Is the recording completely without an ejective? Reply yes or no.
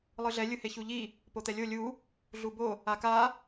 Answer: yes